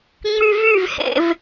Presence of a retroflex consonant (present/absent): absent